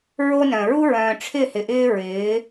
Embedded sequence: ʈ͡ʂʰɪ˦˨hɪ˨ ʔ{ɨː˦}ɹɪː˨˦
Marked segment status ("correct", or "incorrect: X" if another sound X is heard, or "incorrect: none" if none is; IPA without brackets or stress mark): incorrect: ɪː˦